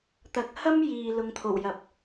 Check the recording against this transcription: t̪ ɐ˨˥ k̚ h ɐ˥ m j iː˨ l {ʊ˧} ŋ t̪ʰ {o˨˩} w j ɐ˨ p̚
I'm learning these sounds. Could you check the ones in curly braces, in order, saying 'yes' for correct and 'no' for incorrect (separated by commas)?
yes, yes